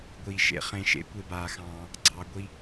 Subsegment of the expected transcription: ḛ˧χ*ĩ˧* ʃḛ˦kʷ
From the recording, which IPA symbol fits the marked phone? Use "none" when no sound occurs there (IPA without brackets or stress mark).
ẽ˧